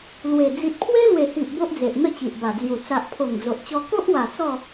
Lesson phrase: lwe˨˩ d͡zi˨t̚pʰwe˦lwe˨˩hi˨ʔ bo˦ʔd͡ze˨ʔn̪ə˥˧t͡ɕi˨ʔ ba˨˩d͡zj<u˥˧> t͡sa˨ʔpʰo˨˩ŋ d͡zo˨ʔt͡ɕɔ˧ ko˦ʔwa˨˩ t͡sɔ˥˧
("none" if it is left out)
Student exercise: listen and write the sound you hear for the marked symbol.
u˨˩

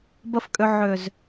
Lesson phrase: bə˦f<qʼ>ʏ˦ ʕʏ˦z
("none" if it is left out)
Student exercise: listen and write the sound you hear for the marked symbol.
kʼ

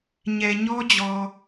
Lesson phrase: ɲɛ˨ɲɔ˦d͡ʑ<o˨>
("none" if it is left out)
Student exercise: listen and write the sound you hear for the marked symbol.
ɔ˨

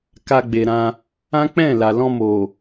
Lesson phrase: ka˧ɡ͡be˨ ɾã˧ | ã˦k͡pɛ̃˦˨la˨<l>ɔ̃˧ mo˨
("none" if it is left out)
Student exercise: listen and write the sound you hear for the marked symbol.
l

